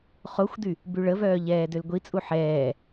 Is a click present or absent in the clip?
absent